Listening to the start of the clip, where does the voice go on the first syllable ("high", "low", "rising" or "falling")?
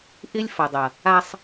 high